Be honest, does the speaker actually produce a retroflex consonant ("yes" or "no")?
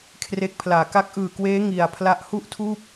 no